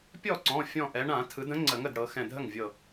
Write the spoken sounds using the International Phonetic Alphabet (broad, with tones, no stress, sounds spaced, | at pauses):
pʲ ɔ˥˩ ǀ ɔ̃˩˧˩ fʲ ɔ̃˧˩ ʔ ɛ˩˧ ɳ ã˧˩˧ tʰ ɯ˩˧ d ə̃˨˥ ŋ͡ǀ ə˧˩˧ ŋ ə˥˩ d ɽ ɤ˩˧ x ɛ̃˧˩ dʱ ə˥˩ ŋ vʲ ɤ˧˩